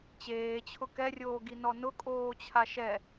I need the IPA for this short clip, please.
t͡ɕ eː t͡ɕʰ ʊ k ɛ rʲ oː ɡ i n ɔ n ʊ kʼ oː t͡ɕʰ a ʃ ɛ

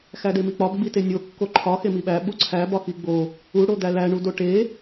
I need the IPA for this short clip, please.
x æ d e m i k͡p ɒ b ɡ͡b i t e nʲ o kː o ǃʰ ɒ x e m i ɓ æ ɓ u ǀʰ æ b ɒ x i ɡ͡b o | u ɽ o d̪ æ l æ ɳ u d o ʈ e

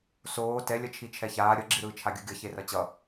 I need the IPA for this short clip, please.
s oː t ɛ lʲ ʌ t͡ʃʰ i t͡ʃʰ ɛ ç aː ɾʲ ʌ ɡ͡ǁ i ɾ ɯː t͡ʃʰ a ɡʲ u ɡʲ ʌ ç e r ʌ t͡ɕ ʌ

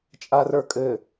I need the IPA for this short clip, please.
t͡ʃʼ a r ə˞ kʼ ɘ

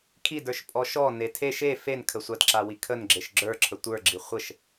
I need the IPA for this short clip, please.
kʰ i d ə˞ ʃ pʼ ɔ ʃ ɔ n e tʰ e ʃ e f e n kʰ ə sʷ a d ǁ a w i kʰ ə n ɡ͡ǁ e ʃ ɡ͡ǁ ə˞ ǁʰ ə tʷ ə˞ ɡ͡ǁ i χʷ ə ʃ

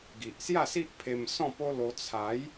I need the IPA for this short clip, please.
ɡ i˨ ʔ s j a˥˧ s i˦ ʔ pʰ e˧ m s ɔ̃˥˧ p o˦ l o˧ t͡sʰ a˨˦ j

